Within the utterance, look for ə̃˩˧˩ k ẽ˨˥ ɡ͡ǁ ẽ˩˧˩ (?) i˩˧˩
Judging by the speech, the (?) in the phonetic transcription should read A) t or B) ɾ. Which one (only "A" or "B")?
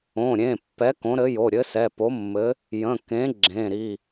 B